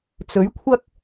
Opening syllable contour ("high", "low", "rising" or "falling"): rising